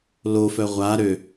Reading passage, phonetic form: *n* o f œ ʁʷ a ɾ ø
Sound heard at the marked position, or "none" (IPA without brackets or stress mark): l